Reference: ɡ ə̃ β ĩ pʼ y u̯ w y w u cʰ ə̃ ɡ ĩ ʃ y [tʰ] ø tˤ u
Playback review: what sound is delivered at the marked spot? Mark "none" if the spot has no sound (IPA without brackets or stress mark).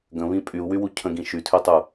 tʰ